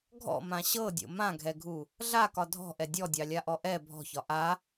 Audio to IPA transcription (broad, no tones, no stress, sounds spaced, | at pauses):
ɡʱ ɔ̰ m ã ɕ ɤ dʲ o̰ m ã ɡʱ ɛ ɡʱ u | ɮ a k ɒ dʱ ɔ̤ ʔ ɛ dʲ ɔ dʲ ɑ lʲ a ʔ ɔ ʔ ɛ bʱ ɔ̤ ç ɒ ʔ a